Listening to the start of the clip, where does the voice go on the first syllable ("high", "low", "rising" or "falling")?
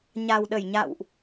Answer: low